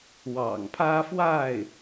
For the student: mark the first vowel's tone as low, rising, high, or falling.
low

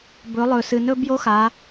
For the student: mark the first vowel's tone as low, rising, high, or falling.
rising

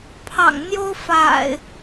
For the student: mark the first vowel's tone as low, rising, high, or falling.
low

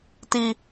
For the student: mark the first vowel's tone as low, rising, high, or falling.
high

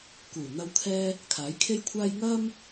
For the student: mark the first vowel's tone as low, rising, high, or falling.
low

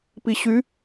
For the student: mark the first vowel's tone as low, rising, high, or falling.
low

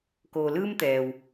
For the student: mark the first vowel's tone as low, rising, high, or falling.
low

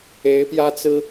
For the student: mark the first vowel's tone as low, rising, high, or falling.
rising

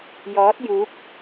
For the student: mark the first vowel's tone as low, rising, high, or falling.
rising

